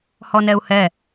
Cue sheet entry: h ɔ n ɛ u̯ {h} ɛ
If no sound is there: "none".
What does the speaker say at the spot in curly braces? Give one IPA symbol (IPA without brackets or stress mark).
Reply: h